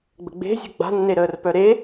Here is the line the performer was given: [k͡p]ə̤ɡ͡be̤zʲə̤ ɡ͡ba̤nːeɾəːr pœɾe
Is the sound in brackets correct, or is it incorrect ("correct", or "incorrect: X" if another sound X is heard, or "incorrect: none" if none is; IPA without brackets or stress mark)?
incorrect: ɡ͡b